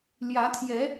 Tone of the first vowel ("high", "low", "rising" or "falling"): rising